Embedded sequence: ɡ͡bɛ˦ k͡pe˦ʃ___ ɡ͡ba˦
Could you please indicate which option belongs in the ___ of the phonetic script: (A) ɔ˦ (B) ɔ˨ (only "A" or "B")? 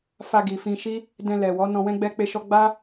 A